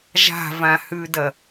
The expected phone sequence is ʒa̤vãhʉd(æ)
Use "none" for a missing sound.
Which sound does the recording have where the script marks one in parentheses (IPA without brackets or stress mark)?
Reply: ɐ